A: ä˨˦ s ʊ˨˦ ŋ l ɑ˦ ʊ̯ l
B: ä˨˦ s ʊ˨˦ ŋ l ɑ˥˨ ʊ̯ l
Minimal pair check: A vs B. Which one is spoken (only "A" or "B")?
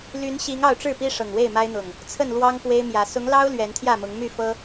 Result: A